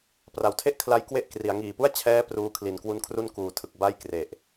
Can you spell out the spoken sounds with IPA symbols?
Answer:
pra˨˩wtʰe˥˩ʔkʰla˦˥j kwe˥˩ʔkri˩˦a̯ ŋiː˨˩pu˥˩a̯ t͡ɕʰɛː˦˥ pruː˧kʰli˩˦nkwu˧n kʰru˥˩nkuː˩˦tʰɯ˨˩k̚ ba˥˩jkre˨˩ʔ

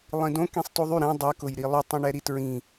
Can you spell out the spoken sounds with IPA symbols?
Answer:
lˠĩdõ kĩsˤtoðˤy ɾɛ̃ dˤɛ kʊjɾilˠɵ tˤõɳɛɾitɹĩ

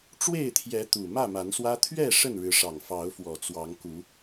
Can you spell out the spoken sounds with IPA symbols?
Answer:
ʈ͡ʂwe˥˨ɪ̯t̪ʰjɛ˨˦ t̪u˨˩ mä˥˨ma˨˦nswä˦ t̪ʰɥɛ˥˨ ʂə˥˨nɻɻ̩˨˦ʂɑ˨˩ŋ fɑ˨˦ʊ̯fwɔ˨˩ t͡swɑ˨˦ŋku˨˦

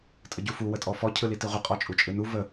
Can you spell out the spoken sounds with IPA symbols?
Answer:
tʼəɟufu wətʼɔfɔ cʰɯlitiʁʷə qʼɔt͡ʃʼut͡ʃʼɯnu və

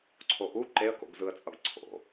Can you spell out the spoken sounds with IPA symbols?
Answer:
ǀʰoʔu ǃeə̯ko̰ɡzɯə̯t͡sʼʌɡ ǀʰo̰

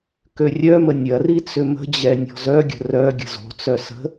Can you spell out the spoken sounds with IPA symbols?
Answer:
kørʲœmə nʲɐri t͡sʏmə̤d͡ʑɛ nʲɔ̤zœɡʲə̤ rœ ɡʲə̤zo̤t͡sœ sə̤

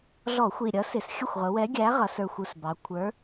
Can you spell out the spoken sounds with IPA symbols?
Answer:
ɮɔ˧˩˧xʷi˨˩ɾʲʌ˨˥sɪ˨˩s xʲə˥˩xʷʁʊ˩˧wɛ˨˥ ɡʲæ˨˥ʁʌ˩˧sə˞˨˩xʷu˨˩s bɑ˩˧kʷʰə˞˨˥

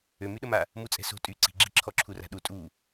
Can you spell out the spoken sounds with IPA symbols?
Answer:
ømyɗəma | mut͡sʼɛ̤so̤ tʼy ǀi̤ɡ͡ǁi ǁʰɔǁʰura̤ɗu tʼu

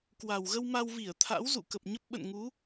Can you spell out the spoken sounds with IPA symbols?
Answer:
kwa˨˩wɣə˧w ma˧wvi˧˩ə̯t̪ʰa̰˧˥w zṵ˧˨kə˨˩p̚ɲə˦˥p̚ ɓə̰˧˨nŋu˨˦

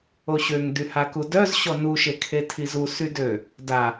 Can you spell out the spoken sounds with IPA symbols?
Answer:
oɕøŋ dyhakudœz ɕɔnu ʃekʰetʰizu sydø | da

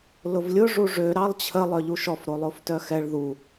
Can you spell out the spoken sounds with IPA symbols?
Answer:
lʊvlʲʊ ʐuʐø ɾɑlˠt͡ɕʰə lˠœʎuʃɔf ɾolˠoftœxɛɭ ðu

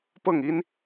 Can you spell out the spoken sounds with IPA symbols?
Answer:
pɤ˥˩ŋi˥n

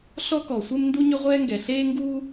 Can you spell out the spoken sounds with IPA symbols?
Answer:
ɬɔ˥kɔ˩sʷe˥m ndu˥ɲʏ˥ʁʷɛː˥ŋɡɛ˩ ɬeː˥ŋɡuː˥

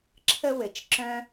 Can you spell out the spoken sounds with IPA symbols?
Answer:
ǁʰə˦wɘ˩t͡ʃ ǁœ̃˥

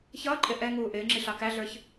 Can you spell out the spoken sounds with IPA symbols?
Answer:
çʌːǃʼɪ ʔɛ ŋuːʔɪːŋ͡ǁi ɬɑkæɮə˞ç

